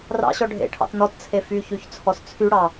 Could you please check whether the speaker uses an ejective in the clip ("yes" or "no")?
no